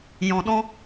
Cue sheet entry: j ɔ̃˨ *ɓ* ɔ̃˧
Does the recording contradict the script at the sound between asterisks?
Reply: yes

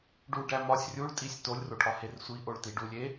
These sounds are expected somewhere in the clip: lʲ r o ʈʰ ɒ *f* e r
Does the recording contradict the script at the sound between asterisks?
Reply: yes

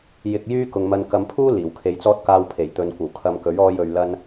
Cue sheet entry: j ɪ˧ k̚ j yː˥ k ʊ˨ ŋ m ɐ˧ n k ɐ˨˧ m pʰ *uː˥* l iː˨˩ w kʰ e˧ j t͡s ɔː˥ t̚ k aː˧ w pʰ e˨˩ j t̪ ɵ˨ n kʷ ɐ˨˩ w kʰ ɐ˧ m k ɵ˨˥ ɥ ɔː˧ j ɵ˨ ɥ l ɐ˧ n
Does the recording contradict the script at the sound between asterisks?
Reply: no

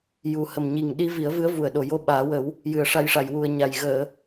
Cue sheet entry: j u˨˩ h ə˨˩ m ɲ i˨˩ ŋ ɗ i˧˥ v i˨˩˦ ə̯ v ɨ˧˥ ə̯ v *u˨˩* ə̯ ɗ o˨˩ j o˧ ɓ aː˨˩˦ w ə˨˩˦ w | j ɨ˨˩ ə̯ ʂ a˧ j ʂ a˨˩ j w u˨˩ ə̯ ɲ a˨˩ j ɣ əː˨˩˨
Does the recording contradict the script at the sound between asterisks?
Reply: no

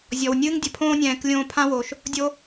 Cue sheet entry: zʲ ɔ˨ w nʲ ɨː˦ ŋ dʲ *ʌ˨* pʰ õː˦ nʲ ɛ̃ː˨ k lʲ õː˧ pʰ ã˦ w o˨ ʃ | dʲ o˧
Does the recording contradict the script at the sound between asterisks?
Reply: yes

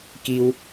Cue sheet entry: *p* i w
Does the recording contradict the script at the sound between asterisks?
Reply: yes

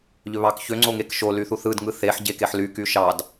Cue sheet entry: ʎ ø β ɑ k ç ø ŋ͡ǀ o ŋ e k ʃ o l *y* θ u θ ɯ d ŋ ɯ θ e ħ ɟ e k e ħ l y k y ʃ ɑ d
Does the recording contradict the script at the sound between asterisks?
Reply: no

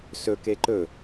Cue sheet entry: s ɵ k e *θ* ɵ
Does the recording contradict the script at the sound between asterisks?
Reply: yes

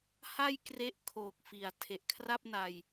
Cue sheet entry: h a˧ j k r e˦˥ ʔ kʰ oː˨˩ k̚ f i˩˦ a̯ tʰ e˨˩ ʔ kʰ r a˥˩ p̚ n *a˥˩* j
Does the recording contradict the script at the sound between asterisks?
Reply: yes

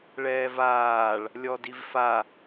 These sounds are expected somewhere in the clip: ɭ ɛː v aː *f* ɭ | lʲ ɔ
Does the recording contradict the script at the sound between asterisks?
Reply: yes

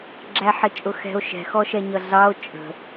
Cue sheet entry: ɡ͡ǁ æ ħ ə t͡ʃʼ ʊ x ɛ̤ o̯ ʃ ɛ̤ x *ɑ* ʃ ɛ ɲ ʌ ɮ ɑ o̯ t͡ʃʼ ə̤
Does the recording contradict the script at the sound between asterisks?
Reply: yes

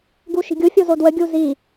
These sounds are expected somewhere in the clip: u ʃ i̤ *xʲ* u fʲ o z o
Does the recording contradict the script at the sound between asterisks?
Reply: yes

